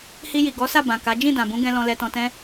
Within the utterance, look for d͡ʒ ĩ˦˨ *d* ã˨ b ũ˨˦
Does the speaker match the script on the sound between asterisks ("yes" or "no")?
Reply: yes